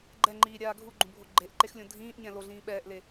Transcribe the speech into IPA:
ɡ͡ǃ ɛ ŋ͡ǃ iː ɾʲ aː ɡʱ u ɡ͡ǃ ũ bʱ o ɡ͡ǃ e ʔ ǃ e x lʲ õ dʱ ĩː ʔ ɲ ɛ̃ l o ɮ ĩː ɓ ɛː ʔ l e

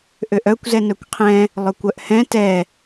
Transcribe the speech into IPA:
ʔ ø ʔ œ kʷ z ɛ n œ kʷ qʰ ɛ̃ | lˠ œ kʷ œ ʔ h ɛ̃ t ɛ

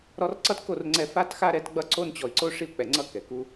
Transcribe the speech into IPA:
ɾ ɔ˧ r ǀ ʌ˦ t k o˦˨ r ŋ͡ǀ ɛ˧ f a˧ t x a˧ ɾ ɛ˨˦ t ɡ͡b ʌ˧ ǀ o˧ n t͡ɕ ɔ˨ i̯ ǀ o˧ ʂ i˧ u̯ k͡p ɛ˨ ŋ͡ǀ ʌ˧ k ɛ˨ k u˦

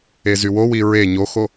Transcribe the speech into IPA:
e z y w o w i ɹ e ɲ o x o

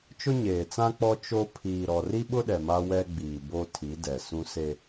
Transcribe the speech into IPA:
t͡ʃ ʊ˦ ɲ eː˨ t͡s ã˦ k͡p ɔ˦ t͡ʃ o˦ pʰ iː˨ ɾ ɔ˨ r i˦ ɓ ʊ˦ ɗ ɛ˨ m a˦ w ɛ˦ ɡ͡b iː˨ b o˦ tʰ i˨˦ d ɛ˨ s ũ˦ s e˦

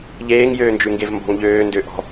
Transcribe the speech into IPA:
ʎ eː ŋ j øː n d͡ʒ ʉ ŋ ɡ e v m b ɔ̤ ŋ ʎ øː n d ø ʔ ɔ̤

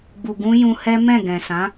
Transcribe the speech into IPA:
ɡ͡b u˨ ɡ ũ˧ j ũ˧ h ɛ˦ m ɛ̃˦˨ ɡ ɛ̃˨ s ã˨˦

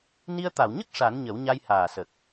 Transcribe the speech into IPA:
n i˧ ə̯ t̪ a˨˩˨ w ɲ ə˦˥ k̚ ʂ a˨˩˦ n ɲ ə˨˩˦ w ɲ a˧ j h aː˨˩ s ə˨˩ k̚

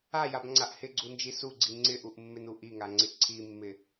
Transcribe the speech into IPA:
a j a b ŋ͡ǀ a ʔ h ɪ ɡ͡ǀ u n d͡ʒ i s u ɡ͡ǀ i ŋ͡ǀ ɪ ʔ u ʔ mː ɪ n u ʔ i ŋ a ŋ͡ǀ ɪ ǀʰ i mː ɪ

